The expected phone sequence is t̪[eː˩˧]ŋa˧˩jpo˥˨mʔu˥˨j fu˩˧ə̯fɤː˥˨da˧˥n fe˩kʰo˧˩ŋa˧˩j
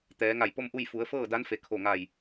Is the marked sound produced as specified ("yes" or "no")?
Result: no